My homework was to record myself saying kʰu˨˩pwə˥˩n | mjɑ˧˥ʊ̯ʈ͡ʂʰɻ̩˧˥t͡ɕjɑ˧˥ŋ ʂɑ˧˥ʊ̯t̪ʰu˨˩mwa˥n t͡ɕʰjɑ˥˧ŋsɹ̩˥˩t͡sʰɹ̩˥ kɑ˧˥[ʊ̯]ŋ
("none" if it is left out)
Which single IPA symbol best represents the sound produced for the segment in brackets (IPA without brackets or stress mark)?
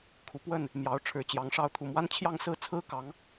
none